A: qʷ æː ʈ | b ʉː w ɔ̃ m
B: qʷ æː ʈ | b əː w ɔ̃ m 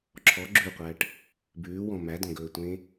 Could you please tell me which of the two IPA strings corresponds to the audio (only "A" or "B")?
A